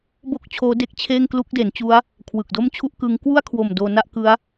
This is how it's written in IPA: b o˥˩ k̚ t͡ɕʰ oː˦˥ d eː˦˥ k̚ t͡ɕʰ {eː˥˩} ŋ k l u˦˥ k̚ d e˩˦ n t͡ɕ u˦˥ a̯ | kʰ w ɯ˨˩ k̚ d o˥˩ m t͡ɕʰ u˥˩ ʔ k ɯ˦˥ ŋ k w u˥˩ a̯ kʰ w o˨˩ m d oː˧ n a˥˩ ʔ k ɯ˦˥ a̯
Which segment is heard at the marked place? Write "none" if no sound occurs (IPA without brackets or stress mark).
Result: eː˥˩